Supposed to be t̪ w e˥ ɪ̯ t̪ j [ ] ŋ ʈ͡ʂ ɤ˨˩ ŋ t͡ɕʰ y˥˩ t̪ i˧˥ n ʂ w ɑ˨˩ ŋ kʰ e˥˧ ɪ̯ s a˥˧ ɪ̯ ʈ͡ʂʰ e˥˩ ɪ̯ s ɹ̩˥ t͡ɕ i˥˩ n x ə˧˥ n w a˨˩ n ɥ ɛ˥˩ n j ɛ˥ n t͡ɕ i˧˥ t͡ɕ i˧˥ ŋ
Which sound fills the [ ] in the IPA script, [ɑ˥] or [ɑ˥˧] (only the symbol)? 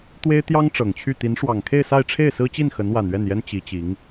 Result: ɑ˥